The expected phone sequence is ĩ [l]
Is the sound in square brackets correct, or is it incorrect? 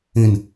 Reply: incorrect